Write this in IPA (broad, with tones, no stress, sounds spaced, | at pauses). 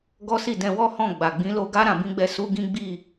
ɡ ɔ˦ s i˦˨ d ɛ̃˧ w ɔ˦ h ɔ̃˦˨ ɡ͡b a˨ ɡ͡b ĩ˨˦ l o˧ ɡ a˦ ɾ ã˧ b ĩ˦ ɡ͡b ɛ˧ s u˦ ɡ ĩ˦ ɡ͡b i˦˨